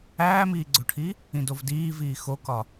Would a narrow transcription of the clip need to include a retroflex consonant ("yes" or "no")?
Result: yes